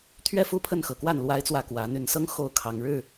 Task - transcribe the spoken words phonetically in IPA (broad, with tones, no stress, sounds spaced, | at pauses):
t̪ʰ ɥ ɛ˥˨ f u˥˨ pʰ ə˥˨ n x ɤ˨˩ k w a˥˨ n l w a˦ ɪ̯ t͡s w ä˥˨ k w ä˨˦ n̪ y˨˩ n s ɤ˦ ŋ x o˥˨ ʊ̯ kʰ ɑ˨˦ ŋ ɻ ɻ̩˥˨